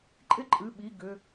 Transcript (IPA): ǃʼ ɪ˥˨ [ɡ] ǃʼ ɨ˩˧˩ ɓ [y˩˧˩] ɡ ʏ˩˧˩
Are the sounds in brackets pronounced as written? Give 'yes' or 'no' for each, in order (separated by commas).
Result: no, no